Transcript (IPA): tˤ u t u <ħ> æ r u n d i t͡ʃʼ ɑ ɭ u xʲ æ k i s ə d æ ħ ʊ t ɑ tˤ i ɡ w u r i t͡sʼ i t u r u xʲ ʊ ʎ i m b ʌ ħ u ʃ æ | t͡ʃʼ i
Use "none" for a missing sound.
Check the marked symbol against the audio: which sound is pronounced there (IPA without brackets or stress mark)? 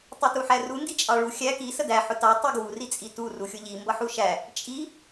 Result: ħ